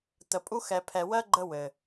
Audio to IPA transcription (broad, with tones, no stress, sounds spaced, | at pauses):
t̪ ə˨ pʼ u˦ x ɛ˨ pʰ ɛ˨ w ɜ˦ ɡ͡ǃ ə˧ w ɘ˨